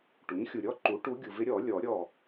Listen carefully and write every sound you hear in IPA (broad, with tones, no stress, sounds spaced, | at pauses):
ʈ u˩˥ ɲ xʲ u˨ ɾʲ ɔ˥˨ ǃ u˩˥ ʈ u˧˥ ɡʲ u˨ v ɪ˧˥ ɾʲ ɔ˨˩˦ lʲ ɔ˨˩˦ ɾʲ ɔ˥˨